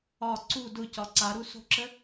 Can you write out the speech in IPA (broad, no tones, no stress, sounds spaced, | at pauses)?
ɒ ǀ u d ʊ c ɒ ǀ a ɾ u s o̤ ǁ ə